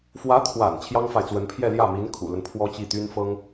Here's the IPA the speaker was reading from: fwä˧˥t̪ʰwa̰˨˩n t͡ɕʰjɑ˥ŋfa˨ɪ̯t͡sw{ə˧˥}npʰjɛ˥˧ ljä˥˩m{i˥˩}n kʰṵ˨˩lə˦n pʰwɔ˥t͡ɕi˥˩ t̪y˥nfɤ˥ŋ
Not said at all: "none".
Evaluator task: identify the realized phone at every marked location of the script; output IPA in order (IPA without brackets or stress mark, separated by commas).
ə˧˥, i˧˥